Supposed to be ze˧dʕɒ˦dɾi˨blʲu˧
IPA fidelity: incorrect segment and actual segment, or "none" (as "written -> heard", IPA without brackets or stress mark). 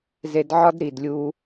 b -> d